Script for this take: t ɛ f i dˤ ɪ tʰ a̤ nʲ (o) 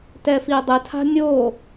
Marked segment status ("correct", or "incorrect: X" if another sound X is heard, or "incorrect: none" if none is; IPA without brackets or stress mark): correct